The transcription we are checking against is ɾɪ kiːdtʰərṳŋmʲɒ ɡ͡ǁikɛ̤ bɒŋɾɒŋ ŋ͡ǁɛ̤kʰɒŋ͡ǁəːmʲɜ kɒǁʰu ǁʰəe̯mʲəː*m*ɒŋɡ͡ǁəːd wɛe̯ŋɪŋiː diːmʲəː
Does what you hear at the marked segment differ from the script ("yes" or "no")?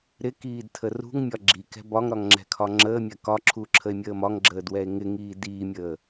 no